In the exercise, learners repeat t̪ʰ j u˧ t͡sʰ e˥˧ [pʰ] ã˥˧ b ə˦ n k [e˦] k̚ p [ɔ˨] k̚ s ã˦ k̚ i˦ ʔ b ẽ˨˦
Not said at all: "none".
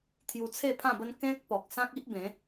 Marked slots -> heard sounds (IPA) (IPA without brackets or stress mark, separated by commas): pʰ, ẽ˦, ɔ˨